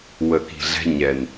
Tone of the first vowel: low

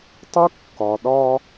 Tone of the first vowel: high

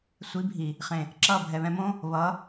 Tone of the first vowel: rising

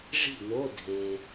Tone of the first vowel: falling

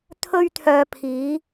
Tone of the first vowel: high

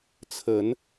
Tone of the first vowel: rising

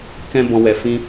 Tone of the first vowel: high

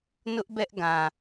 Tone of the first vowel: high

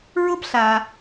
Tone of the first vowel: high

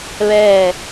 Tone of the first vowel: falling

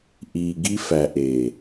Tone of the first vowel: low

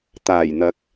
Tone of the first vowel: low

